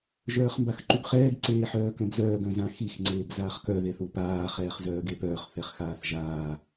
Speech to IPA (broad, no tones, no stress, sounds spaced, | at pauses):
ʒ œː χ m b a x ǃ u ɡ χ ɛː ɡ ǀ eː ħ œː k œ̃ b z œː ɡ œ̃ z ã x i x ŋ͡ǀ eː b z aː χ k œ ð e θ u p aː χ ɛː χ z œː ɡ e p œː χ θ ɛ χ x aː θ ʒ aː